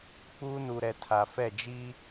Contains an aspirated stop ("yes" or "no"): yes